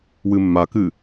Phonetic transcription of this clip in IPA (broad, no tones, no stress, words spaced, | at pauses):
wɨmːakɨ